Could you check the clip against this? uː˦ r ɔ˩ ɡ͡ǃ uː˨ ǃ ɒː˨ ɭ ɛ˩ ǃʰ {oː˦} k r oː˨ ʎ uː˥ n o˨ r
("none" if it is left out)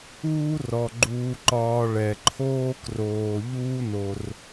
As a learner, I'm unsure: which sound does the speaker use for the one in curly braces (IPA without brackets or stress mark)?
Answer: oː˦